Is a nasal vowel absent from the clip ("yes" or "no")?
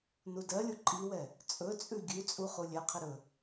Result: yes